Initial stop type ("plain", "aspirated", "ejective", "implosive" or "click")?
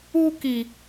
plain